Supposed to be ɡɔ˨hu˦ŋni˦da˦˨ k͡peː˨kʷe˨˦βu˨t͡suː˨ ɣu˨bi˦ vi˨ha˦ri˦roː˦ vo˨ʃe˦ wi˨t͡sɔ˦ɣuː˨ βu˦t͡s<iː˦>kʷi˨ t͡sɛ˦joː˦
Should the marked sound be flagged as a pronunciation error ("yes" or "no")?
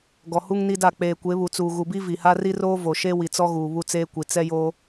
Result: yes